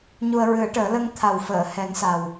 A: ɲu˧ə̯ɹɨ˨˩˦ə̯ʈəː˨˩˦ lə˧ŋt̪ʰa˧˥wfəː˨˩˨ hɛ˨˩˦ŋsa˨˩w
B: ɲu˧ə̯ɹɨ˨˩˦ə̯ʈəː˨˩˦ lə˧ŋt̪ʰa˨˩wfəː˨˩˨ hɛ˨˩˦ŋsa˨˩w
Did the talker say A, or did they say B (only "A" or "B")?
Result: B